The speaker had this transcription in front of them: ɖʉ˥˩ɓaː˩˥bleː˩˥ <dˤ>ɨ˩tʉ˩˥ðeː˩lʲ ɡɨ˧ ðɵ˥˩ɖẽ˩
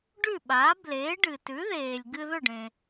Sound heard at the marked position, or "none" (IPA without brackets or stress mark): ɖ